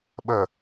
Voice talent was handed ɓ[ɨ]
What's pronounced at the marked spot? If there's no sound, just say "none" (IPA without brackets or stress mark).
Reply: ə